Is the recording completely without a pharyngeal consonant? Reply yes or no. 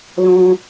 yes